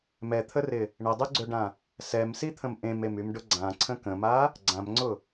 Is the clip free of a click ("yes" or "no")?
no